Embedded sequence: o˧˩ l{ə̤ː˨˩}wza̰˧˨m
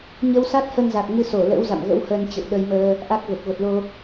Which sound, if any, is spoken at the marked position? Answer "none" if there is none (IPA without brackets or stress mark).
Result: ə̰ː˧˥